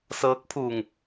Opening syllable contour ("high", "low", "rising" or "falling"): rising